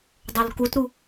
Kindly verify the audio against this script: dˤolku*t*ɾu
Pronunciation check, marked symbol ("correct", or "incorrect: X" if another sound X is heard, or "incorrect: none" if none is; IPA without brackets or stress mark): correct